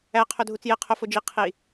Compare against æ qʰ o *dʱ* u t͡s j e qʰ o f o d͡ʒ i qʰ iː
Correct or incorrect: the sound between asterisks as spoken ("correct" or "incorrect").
correct